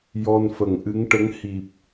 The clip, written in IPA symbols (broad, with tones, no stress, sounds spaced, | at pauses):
j ɔ˧ n f ə˨˩ ŋ ʔ ɨ˧˥ ŋ ʈ ə˧˥ ŋ h i˨˩ p̚